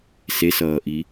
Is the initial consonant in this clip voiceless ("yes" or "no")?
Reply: yes